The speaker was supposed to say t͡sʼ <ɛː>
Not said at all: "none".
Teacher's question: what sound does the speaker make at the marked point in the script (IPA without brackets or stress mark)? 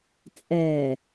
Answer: ɛː